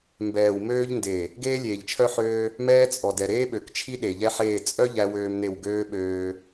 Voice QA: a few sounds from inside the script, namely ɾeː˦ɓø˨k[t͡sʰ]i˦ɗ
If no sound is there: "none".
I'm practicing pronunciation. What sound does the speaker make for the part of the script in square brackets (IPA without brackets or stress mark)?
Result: t͡ʃʰ